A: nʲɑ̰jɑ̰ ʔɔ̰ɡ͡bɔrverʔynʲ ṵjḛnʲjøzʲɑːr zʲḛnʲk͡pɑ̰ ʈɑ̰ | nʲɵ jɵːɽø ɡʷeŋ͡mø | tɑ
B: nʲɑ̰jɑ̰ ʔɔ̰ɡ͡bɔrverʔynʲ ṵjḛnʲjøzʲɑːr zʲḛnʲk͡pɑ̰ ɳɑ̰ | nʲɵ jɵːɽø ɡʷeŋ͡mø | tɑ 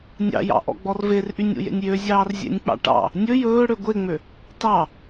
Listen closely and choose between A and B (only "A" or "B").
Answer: A